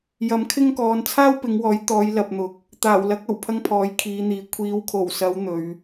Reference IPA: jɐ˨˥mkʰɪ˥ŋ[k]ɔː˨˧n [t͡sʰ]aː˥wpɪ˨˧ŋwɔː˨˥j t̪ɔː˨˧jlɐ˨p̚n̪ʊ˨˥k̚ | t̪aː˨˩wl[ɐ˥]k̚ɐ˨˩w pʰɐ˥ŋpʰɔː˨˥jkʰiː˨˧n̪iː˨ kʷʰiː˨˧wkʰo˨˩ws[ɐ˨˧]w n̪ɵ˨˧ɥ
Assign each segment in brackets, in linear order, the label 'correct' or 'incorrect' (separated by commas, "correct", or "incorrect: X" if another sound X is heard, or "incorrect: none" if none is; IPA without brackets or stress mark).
correct, correct, incorrect: ɐ˨˥, correct